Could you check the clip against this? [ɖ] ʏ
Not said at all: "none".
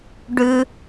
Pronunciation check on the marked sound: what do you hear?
ɖ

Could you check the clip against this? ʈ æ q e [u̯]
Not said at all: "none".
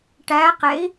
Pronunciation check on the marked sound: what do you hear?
i̯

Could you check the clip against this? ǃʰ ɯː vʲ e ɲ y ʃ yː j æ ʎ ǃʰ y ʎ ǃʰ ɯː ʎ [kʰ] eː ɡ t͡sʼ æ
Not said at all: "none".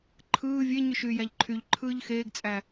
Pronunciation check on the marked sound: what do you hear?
x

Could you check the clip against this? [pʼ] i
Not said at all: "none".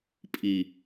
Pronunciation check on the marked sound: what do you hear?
pʼ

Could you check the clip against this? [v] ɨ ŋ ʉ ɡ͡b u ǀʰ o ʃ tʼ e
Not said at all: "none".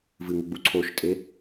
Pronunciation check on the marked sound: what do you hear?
v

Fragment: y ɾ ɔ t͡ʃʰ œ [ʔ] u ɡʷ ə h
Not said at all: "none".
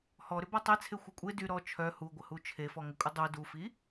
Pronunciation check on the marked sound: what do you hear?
h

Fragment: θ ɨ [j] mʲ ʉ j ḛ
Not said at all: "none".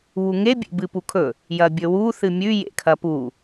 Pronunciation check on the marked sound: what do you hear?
none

